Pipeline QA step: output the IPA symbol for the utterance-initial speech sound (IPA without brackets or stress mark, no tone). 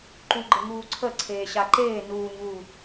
ǃ